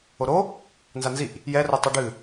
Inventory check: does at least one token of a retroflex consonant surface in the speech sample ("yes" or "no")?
yes